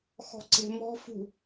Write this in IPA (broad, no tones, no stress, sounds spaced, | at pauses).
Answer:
x ɔ̤ ǀ e̤ m ɔ̤ f ṳ